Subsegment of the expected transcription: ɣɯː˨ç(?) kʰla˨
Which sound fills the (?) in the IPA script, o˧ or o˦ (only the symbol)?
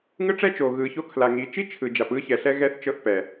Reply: o˧